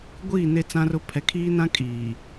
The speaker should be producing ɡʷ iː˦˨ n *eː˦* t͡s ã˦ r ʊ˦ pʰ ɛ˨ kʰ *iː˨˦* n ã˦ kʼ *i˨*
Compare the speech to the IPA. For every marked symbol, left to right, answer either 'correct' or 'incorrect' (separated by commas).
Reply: incorrect, incorrect, incorrect